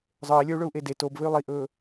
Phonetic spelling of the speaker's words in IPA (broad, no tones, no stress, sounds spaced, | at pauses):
zˤ ə˞ i̯ lʲ ə˞ u̯ ɭ ɵ u̯ ʔ e d e t o b v ɘ y̯ lˠ i ʔ ɵː